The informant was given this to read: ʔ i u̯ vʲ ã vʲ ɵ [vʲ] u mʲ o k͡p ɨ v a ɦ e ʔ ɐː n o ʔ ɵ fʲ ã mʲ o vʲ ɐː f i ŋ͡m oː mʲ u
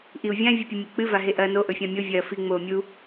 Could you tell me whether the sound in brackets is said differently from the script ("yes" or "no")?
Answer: yes